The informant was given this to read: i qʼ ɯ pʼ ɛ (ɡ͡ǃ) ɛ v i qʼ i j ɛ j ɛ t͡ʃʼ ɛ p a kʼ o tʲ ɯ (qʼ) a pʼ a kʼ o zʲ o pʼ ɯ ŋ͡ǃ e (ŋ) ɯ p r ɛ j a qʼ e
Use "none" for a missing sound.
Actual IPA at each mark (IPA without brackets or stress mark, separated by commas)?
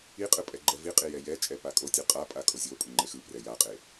ɡ͡ǃ, qʼ, x